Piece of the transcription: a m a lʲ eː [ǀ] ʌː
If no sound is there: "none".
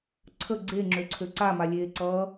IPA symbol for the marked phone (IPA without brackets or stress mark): ǀ